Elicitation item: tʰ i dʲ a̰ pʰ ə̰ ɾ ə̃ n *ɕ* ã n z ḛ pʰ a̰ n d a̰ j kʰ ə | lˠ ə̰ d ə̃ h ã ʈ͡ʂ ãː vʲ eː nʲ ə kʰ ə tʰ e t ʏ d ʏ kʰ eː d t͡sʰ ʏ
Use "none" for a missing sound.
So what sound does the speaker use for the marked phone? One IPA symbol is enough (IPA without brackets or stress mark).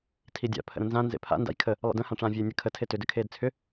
z